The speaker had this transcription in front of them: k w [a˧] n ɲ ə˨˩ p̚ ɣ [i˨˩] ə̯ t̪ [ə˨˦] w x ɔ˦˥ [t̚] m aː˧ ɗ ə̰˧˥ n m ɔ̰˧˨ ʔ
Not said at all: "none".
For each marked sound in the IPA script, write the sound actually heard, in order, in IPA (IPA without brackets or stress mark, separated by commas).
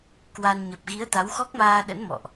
a˧, i˨˦, a˨˦, k̚